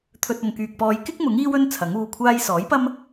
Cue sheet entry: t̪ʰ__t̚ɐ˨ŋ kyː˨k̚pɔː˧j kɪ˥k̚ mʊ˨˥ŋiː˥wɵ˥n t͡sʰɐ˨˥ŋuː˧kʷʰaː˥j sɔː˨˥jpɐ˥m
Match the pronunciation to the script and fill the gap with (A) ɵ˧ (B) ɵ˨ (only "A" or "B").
A